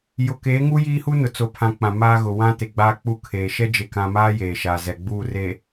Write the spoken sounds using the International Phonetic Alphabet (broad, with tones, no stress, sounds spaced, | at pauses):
j ʊ˨ k eː˨˦ ŋ u˦ j iː˦ h u˦ n ʊ˨ t͡s o˨ pʰ ã˨ k͡p ã˨ m aː˦ ɣ ʊ˨ w ã˦ t e˨ ɡ͡b aː˦ k͡p u˦ kʰ eː˨ ʃ ɛ˦ d͡ʒ e˨ k ã˨ m aː˦ j eː˨ ʃ aː˨ z ɛ˨ ɡ͡b uː˦˨ r e˨